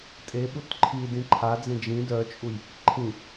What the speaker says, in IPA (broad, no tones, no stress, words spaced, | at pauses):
tʼeɓut ǃʰi dĩǃʰad͡zẽ d͡ʒĩ dœt͡ʃʼuj | ǃʰĩ